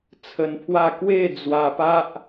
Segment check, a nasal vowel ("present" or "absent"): absent